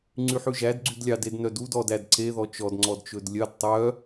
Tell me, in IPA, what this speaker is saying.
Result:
ŋ͡ǀ y ħ ʉ ʒ æ d ɡ͡ǀ y d lʲ ɑ d e d n œ d u d ɔ d æ d ǀ e ð ɔ t͡ʃ ɔ d ŋ͡ǀ ɔ d t͡ʃ ɵ d lʲ œ d tˤ œ

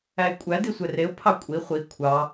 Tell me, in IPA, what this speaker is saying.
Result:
æ ɪ̯ kʷʼ æ d i sʷ ɛ r e ʊ̯ pʰ ɑ kʷʼ i χʷ i kʷʰ ɑ

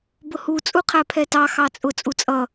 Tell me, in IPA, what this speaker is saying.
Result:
b ʊ h u t͡sʼ u qʰ æ pʰ ɛ t ɑ x ɑ t͡sʼ ʊ t͡sʼ u t͡sʼ ʌ

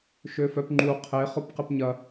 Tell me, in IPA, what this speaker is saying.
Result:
ʃ ø f œ p ŋ͡ǃ u qʰ e χ ʊ p q ɪ p ɲ ɐ

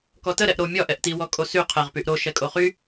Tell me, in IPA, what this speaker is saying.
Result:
k ɔ t ə ɾ ɛ ʔ ɾ o mʲ ɒ ʔ ɛ ʔ t i w ɔ kʼ o s y qʰ ɛ ʁ p y ʔ ɾ o ʃ ɛ kʼ o χ y

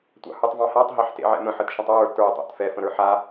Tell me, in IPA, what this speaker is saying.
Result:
tʷ ɑ̰ h ʉ tˤ v ɑ̃ h a tˤ ɦ ɑ ħ t ḛ ʕ ɛ̰ m ə̃ ħ ə t ʃ ə̃ tˤ w ə˞ t ə˞ tˤ ɑ̰ t f ɛ f ə̃ ɾ ə˞ ħ a

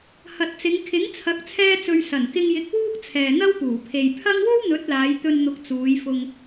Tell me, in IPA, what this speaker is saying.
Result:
h ɐ˨ t̚ t͡s ɪ˨˧ ŋ kʰ ɪ˨˥ ŋ t͡sʰ ɐ˨˥ k̚ t͡sʰ ɛː˧ t͡s ɵ˨ ɥ s ɐ˨˩ n k ɪ˧ ŋ j ɪ˨˥ k̚ w uː˥ k̚ t͡sʰ ɛː˨ n̪ ɐ˥ w p uː˨˩ pʰ e˨ j pʰ ɐ˥ ŋ w o˥ w n̪ ɵ˨˥ t̚ l aː˨˧ j t̪ ɵ˧ n n̪ ʊ˨˥ k̚ t͡s uː˨˧ j f ʊ˧ ŋ

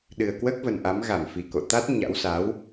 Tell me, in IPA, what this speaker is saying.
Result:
ɗ ɨ˨˩ ə̯ k w əː˦˥ k̚ v ə˨˩ n ʔ a˨˦ m ɣ a˧˩ m f i˨˩ k o̰˧˨ t̪ a˦˥ t̚ ɲ a̰˧˥ w s a˨˦ w

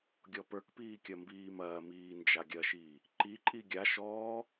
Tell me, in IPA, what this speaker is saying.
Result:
ɡʲ ɔ p ə˞ k p iː kʲ ɐ m b iː m ɐː m iː n d͡ʒ a ɡʲ ɐ ʃ iː | ǃ i ǃʼ i ɡʲ a ʃ ɔː

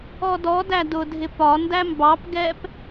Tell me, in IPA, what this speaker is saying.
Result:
ɔ d ɔ d æ d ʊ dʱ ɪ p ɒ n d æ m b ɑ p ɡ ɛ p

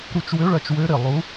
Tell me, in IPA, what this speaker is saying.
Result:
ɾ u˦˨ t͡ʃ w ø˧˥ ɭ ɐ˦˨ t͡ʃ w ø˧˥ ɾ ɪ˦˨ lˠ u˧˥

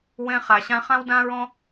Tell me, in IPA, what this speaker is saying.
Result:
w ɛ̃˧ χ a˩ ɕ ã˧ χ ã˥ w d ã˥ ɹ ɔ̃˥

